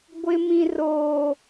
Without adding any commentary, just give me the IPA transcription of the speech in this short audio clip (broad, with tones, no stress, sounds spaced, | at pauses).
ɡʷ ɪ˦ m ĩ˦ r oː˦